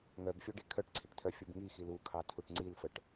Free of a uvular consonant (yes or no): yes